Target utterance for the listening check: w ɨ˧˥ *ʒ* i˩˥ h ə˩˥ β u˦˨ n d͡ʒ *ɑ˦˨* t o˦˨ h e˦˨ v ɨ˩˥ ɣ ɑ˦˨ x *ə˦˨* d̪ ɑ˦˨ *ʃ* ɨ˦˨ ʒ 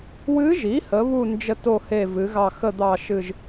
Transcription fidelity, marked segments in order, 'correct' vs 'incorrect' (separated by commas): correct, incorrect, correct, correct